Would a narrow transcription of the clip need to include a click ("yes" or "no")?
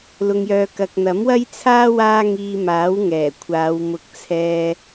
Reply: no